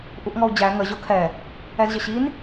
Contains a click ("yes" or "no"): no